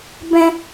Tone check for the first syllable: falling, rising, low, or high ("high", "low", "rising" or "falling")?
high